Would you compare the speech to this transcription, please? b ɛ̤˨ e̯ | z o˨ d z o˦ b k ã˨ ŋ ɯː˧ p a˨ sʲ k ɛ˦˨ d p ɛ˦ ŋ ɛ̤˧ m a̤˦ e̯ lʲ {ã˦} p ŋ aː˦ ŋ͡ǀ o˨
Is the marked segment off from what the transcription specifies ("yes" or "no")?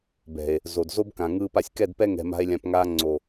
yes